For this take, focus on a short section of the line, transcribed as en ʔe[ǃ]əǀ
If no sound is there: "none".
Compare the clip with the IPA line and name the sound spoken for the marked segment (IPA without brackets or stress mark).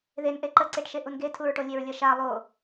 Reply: ǃ